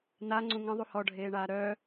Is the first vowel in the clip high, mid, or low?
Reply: low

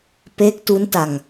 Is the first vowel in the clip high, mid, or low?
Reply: mid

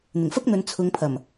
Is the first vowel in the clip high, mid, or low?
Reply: high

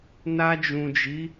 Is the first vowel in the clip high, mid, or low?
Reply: low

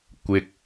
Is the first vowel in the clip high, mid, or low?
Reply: high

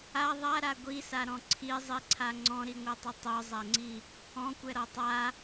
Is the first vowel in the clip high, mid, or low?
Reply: low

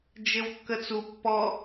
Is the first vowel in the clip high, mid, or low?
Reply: mid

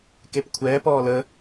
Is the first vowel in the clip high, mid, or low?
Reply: mid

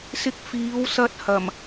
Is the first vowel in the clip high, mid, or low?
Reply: high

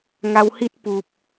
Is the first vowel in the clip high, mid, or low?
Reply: low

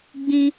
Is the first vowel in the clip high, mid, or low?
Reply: high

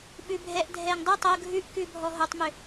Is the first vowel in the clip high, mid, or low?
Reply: high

